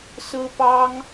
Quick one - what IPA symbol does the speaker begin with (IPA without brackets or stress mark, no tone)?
s